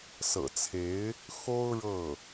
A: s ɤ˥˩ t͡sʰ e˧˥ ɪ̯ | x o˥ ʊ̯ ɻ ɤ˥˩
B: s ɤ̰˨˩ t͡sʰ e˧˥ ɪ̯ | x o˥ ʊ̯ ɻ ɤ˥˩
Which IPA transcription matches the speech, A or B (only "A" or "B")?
B